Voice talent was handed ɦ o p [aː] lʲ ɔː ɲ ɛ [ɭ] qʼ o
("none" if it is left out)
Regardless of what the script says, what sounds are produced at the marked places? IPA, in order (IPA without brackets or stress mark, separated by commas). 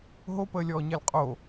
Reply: əː, l